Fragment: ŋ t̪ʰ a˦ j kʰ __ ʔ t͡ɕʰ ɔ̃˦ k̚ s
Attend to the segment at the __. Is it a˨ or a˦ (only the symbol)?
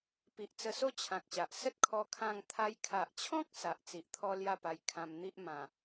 a˨